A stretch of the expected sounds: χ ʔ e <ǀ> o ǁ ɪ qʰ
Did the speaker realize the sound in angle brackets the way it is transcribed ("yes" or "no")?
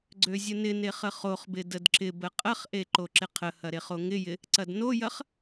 no